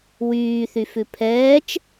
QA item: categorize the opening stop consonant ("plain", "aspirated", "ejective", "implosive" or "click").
aspirated